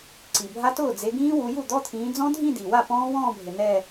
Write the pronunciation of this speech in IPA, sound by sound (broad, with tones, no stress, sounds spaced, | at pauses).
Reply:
ǀ i˨˩ bʱ a˦˥ t ʊː˥˩ d͡z e˨˦ ɡ ĩː˦˥ w u˨˦ j u˥˩ d̪ ɔ˧˥˧ t̪ʰ ĩː˨˦ d͡z ɔ̃˦˥ dʱ ĩ˥˧ d i˨˩ w a˥˩ p ɔ̃ː˦˥ w ɔ̃ː˥˧ bʱ ɪ˨˩ n ɛ˥˧